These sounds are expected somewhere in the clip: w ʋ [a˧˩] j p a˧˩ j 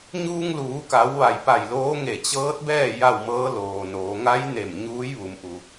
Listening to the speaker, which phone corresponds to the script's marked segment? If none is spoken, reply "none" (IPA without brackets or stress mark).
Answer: a˧˩